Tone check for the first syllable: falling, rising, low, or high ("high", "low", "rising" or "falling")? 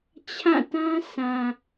falling